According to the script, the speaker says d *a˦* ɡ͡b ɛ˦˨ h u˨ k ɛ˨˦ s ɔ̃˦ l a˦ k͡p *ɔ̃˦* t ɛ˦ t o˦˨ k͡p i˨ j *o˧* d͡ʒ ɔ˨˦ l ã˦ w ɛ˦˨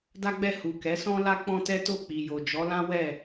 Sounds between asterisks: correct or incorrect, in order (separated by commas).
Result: correct, correct, incorrect